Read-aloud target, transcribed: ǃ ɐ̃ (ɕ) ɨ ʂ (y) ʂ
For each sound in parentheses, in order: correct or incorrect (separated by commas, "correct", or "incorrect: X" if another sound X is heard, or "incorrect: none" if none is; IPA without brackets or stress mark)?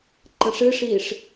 incorrect: ʂ, incorrect: i